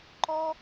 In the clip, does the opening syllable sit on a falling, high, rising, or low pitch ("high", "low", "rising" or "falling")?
high